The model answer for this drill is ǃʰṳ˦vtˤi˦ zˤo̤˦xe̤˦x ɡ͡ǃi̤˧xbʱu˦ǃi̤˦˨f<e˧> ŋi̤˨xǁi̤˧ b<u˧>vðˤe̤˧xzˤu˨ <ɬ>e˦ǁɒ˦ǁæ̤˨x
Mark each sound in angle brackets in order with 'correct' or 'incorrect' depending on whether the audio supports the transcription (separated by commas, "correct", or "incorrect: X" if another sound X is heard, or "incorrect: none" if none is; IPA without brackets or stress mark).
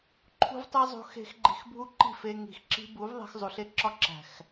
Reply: correct, incorrect: u˨˦, correct